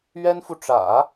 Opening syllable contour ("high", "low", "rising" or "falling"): high